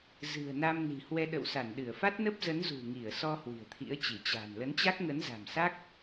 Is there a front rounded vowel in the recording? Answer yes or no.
no